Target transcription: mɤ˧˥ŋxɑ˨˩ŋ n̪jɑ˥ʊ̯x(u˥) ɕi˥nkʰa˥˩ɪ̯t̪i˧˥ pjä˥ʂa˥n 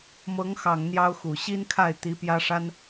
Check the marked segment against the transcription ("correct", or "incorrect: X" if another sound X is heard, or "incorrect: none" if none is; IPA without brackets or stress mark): incorrect: u˨˩